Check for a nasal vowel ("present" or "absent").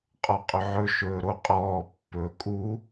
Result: absent